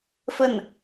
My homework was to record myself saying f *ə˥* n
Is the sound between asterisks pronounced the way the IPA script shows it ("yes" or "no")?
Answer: no